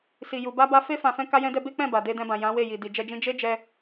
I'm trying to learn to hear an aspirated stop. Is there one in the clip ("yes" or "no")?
no